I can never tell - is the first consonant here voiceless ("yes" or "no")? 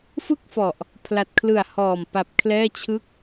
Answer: yes